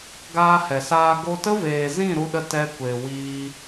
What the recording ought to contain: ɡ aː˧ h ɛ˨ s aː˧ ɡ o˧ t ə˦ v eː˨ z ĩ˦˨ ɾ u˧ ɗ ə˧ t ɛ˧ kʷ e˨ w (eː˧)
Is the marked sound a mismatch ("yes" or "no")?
yes